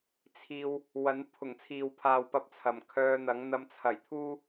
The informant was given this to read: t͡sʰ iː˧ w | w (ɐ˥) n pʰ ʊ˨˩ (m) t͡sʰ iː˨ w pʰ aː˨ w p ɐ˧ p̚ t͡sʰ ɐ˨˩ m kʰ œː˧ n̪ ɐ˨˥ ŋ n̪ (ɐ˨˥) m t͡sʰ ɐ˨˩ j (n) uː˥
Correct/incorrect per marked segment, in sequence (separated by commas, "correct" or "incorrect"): incorrect, incorrect, incorrect, incorrect